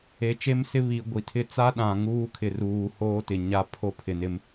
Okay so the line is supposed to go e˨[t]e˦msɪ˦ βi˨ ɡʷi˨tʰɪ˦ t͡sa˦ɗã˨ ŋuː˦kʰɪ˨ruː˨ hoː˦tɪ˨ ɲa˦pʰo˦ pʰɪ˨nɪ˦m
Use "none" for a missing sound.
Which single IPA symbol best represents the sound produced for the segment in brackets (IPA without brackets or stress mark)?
t͡ʃ